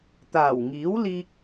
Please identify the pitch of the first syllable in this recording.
low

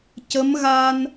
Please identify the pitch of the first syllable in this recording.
rising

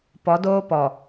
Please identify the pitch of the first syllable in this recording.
rising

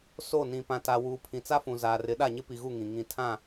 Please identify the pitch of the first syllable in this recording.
falling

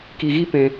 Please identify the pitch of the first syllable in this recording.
low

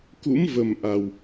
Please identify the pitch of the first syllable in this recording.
rising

